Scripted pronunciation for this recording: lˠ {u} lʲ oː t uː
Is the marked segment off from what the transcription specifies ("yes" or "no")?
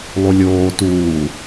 no